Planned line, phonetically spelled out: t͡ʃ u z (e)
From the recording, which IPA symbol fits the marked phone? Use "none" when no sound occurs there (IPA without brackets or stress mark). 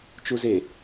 e